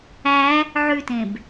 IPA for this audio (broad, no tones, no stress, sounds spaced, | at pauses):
æ | ʕ ʉ t ẽ b